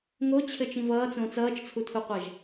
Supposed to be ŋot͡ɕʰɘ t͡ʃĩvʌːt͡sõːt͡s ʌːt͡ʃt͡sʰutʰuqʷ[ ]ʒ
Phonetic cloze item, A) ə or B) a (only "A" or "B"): B